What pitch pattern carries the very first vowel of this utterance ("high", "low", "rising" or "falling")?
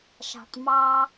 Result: low